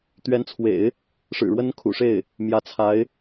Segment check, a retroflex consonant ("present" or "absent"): present